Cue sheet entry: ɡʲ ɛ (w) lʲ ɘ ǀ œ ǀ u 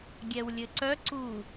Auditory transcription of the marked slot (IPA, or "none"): w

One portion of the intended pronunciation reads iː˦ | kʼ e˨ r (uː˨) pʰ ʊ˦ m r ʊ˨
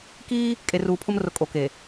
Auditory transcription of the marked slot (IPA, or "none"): uː˨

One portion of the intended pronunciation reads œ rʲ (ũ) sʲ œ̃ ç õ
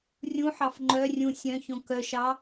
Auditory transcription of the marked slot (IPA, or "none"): ũ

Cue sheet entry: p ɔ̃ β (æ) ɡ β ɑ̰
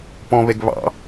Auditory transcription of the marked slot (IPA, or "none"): ɛ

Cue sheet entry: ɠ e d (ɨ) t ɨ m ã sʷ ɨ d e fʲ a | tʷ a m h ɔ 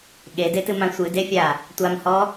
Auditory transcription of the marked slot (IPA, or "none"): e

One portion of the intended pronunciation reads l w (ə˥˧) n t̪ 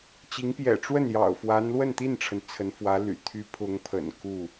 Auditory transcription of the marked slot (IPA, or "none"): ə˥˧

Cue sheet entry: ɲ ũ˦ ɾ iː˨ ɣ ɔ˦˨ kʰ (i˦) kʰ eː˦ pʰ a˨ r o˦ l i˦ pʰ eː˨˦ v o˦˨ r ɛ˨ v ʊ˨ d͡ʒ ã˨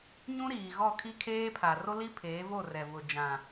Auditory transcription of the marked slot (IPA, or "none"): i˦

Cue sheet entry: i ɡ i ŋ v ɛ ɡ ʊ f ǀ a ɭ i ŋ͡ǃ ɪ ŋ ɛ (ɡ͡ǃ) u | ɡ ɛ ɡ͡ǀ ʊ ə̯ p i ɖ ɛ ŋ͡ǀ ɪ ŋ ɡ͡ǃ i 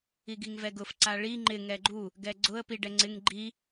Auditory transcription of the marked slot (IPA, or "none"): ɡ͡ǃ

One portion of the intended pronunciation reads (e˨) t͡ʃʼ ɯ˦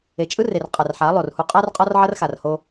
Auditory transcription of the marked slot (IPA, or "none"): e˨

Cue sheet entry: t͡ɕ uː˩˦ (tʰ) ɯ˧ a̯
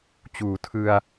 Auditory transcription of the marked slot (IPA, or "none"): tʰ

